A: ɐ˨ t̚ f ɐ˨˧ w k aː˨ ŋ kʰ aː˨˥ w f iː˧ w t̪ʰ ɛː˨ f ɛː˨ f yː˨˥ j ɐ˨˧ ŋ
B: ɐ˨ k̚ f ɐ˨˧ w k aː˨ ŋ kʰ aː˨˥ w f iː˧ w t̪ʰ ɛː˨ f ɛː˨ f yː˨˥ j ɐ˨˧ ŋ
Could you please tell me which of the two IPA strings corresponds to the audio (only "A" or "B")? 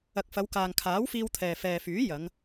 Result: B